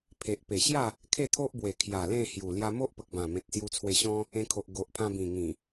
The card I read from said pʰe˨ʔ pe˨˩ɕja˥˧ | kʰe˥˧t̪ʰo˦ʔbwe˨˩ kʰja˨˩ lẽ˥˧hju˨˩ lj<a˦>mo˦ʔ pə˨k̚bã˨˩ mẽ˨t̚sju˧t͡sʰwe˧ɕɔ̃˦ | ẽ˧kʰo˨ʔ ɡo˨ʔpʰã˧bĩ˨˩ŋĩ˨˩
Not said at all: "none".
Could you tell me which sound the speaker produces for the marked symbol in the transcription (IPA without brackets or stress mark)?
a˧